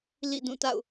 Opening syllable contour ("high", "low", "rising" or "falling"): falling